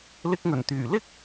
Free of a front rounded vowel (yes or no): no